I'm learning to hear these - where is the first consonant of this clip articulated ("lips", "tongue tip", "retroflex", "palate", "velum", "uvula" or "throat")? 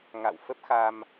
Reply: velum